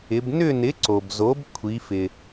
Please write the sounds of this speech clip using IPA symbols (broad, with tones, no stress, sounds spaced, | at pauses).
ɪ˩˧ b n ʏ˦˨ n ɪ˩˥ ǀ o˩ b z o˩˥ b kʷʰ i˩˧ f ɪ˩